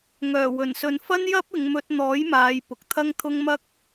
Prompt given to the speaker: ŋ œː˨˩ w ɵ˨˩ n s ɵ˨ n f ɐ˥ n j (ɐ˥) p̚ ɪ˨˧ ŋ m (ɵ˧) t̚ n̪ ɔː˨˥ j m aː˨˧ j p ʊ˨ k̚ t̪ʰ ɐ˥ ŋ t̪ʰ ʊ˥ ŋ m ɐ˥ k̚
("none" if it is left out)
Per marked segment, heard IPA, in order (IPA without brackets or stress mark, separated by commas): ɐ˥, ɵ˧